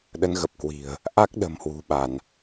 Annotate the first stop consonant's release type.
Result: implosive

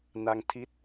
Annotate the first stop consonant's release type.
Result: aspirated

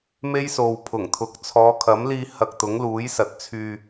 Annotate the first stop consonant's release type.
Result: aspirated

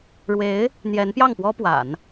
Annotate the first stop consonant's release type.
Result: plain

